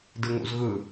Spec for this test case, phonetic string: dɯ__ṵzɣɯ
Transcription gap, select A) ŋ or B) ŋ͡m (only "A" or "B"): A